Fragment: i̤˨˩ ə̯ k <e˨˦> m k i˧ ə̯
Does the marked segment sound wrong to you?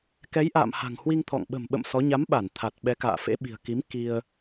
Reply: yes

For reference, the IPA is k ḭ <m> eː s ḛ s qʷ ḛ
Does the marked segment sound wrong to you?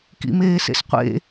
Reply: no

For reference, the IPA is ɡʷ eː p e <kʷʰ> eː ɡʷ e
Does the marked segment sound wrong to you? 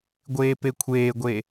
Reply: no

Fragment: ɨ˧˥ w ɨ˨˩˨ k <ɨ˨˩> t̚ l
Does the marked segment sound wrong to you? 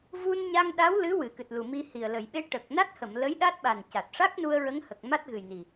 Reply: no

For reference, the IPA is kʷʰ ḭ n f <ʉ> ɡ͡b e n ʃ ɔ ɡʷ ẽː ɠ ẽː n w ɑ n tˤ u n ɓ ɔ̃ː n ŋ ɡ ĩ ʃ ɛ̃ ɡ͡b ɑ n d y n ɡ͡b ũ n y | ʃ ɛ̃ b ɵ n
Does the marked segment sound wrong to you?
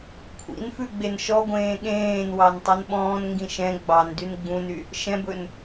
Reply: no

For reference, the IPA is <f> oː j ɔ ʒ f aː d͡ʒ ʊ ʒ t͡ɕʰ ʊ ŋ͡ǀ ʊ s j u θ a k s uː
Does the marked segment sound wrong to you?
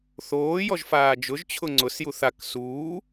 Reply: yes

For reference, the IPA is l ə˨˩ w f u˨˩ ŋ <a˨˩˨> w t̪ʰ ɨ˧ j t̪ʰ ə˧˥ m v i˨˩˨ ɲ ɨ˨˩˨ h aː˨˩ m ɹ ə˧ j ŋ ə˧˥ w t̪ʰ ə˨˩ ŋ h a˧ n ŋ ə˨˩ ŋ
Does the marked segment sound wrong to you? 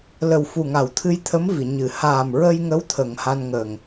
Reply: no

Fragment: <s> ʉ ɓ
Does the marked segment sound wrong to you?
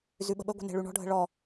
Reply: yes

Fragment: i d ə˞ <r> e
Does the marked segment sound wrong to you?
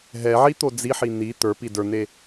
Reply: yes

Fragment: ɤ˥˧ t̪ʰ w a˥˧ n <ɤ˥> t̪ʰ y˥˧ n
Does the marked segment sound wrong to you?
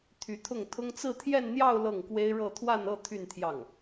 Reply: yes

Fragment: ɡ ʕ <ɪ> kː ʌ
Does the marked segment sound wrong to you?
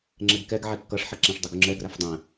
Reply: yes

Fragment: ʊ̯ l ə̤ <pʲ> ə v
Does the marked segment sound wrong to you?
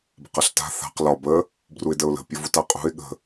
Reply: no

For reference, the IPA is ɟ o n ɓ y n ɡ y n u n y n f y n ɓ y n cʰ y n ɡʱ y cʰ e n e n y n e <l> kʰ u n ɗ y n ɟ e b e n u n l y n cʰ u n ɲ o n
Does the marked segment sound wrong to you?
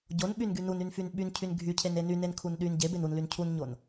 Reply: yes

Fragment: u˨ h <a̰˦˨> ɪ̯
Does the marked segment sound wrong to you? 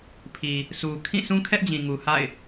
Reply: no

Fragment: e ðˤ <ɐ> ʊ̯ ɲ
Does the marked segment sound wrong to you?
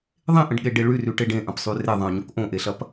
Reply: yes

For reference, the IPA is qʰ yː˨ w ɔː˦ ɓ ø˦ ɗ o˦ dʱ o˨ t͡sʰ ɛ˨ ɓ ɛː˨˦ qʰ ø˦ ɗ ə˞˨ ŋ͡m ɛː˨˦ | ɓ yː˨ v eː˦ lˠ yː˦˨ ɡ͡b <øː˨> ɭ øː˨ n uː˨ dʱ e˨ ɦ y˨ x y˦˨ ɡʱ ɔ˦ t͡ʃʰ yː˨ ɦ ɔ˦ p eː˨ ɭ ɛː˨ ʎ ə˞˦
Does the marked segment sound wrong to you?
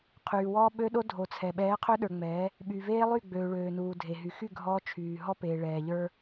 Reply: no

